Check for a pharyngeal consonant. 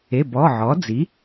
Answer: present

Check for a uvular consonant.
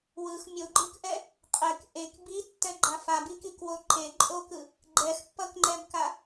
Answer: present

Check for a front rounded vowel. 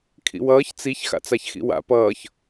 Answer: absent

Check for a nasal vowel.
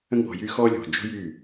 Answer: present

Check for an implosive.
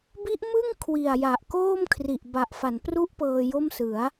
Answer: absent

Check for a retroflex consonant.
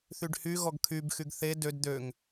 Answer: present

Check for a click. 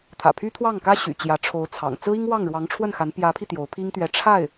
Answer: absent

